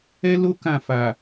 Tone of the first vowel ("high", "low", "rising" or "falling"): high